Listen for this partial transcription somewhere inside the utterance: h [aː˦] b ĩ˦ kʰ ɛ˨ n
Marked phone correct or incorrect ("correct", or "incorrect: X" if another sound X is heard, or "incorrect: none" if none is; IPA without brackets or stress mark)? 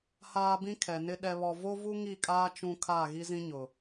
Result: correct